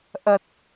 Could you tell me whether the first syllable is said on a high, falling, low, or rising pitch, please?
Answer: low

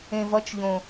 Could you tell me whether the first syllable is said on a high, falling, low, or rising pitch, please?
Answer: low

